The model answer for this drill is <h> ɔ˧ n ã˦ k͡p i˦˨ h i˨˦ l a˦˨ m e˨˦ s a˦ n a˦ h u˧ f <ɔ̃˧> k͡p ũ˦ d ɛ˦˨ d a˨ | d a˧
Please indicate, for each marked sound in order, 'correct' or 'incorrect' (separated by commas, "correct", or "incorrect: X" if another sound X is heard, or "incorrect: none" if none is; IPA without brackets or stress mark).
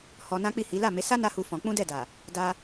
correct, correct